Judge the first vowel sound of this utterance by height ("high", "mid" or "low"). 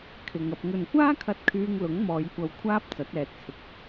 high